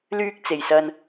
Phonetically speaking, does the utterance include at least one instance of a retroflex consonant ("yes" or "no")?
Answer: no